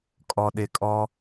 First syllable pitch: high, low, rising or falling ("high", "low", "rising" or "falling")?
low